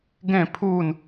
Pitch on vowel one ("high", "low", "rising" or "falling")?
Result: falling